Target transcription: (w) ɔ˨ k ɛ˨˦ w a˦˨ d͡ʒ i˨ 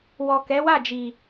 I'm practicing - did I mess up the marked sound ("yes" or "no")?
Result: no